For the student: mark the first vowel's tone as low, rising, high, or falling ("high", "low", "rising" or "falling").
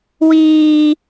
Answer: high